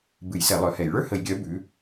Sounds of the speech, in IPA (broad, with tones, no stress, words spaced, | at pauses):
bɨ˧˩˧jsɛ˧˩˧ lˠœ˨˥hɛ˧˩˧j ɭə˞˥hə˧˩˧jɡʲœ˨˥ bʉ˨˥